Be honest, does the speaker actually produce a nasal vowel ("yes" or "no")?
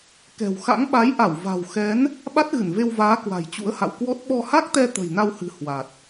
no